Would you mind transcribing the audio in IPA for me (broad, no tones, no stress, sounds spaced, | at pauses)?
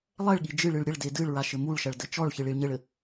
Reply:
lˠ ɛ ɭ ɠ i d͡ʒ ɨ ɭ ɨ ɭ ɾʲ ɘ ɭ d e d ɨ ɭ ɹ a ʃ ɘ m u ɭ ʃ ɐ ɭ d ɘ t͡ʃ ɔ ɭ ç ɨ ɭ i ɭ ɲ ɘ ɭ ɘ